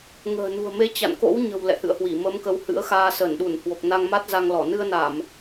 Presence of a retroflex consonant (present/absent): absent